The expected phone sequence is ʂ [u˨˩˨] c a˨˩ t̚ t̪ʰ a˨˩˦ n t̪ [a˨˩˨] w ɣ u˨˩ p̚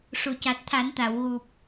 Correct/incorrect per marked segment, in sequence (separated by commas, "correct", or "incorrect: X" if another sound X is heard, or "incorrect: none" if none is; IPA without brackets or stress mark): correct, correct